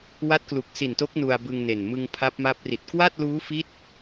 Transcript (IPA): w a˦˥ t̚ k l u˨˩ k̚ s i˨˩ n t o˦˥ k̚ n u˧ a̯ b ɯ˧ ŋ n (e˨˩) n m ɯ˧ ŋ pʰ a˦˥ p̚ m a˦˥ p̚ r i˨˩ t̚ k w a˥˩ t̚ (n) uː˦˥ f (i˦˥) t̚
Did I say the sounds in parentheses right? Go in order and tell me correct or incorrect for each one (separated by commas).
correct, incorrect, correct